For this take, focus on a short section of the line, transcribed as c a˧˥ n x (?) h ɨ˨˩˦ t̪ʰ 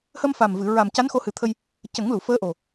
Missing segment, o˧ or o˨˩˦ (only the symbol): o˧